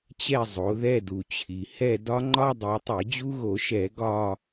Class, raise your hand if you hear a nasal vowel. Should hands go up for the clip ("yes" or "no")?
no